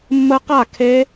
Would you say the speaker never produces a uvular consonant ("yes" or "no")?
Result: no